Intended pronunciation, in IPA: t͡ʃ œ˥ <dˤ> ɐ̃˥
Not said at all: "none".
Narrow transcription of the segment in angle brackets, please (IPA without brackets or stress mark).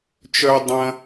dˤ